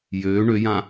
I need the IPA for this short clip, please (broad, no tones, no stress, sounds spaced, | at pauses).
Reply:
j øː ɳ ø j ã